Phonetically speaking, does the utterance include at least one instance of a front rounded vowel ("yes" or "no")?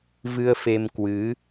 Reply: no